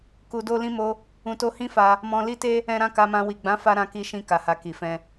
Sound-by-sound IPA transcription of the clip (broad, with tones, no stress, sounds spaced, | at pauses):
k u˧ d o˦ l ĩ˦ m o˦ | ũ˧ t o˦ h ĩ˦ f a˧ | m ɔ̃˧ l i˦ t e˦ | ɛ̃˧ ɾ ã˧ k a˧ m ã˧ w i˨ ɡ͡b ã˨˦ f a˧ ɾ ã˧ k i˧ ʃ ĩ˧ k a˨ h a˨ k i˨ f ɛ̃˧